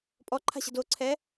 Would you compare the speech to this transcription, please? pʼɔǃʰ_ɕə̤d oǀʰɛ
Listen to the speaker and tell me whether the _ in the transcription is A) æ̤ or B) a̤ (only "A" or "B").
B